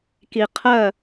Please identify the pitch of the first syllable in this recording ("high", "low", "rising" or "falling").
low